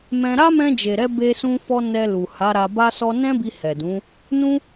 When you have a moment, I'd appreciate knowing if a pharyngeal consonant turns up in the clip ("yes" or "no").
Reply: no